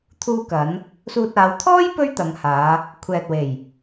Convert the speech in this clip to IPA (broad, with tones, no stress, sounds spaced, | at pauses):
t̪ʰ uː˧ k ɐ˨˧ n | s uː˧ t̚ aː˨˧ w t̪ʰ ɔː˥ j p ɵ˥ ɥ t̪ ɐ˨˧ ŋ h aː˨˧ | kʷʰ ɛː˨ t̚ w e˨˩ j